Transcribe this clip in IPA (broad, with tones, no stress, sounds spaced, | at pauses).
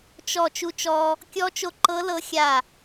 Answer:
t͡ʃ ɔ˧˩ t͡ʃ u˧ t͡ʃ ɔ˧ | kʲ ɔ˧˥ t͡ʃ o˧ ǃ ɤ˧˥ l ɤ˧˥ xʲ a˧˩